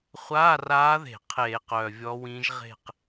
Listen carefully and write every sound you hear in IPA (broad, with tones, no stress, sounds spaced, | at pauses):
χʷ aː˧˥˧ r aː˧˥ ð e̤˧˩˧ qʰ eː˧˩˧ q œː˨˩ vʲ ɔ˧˥ w ĩː˧˥ ʒ ʁ e̤˥˧ q